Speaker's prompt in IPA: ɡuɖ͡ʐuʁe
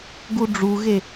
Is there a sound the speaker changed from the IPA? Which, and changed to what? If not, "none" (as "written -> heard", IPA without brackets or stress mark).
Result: ʁ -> ɣ